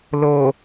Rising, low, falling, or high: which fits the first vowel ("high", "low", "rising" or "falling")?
low